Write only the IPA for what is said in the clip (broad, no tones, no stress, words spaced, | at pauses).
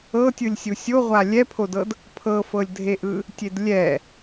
ɤtʲɯlʲ sʲusʲoʁʷa lʲɛpʰodɤd | pʰɤfɤlʲdʱeʔɯ | tʲedlʲɛ